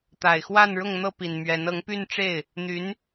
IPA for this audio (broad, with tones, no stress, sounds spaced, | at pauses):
t̪ a˨˩ ɪ̯ x w a˥˧ n ɻ ʊ˥˧ ŋ n̪ ɤ˥˩ p i˨˩ n m ɥ ɛ˧˥ n ɤ˧˥ ŋ p y˥˧ n ʈ͡ʂ e˥˩ ɪ̯ | n̪ y˧˥ n